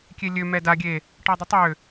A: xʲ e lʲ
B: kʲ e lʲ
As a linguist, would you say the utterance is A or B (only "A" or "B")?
B